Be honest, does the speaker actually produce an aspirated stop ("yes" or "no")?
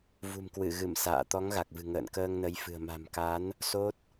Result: no